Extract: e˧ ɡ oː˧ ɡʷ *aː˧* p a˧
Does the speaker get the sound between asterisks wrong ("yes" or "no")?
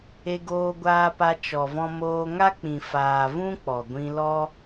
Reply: no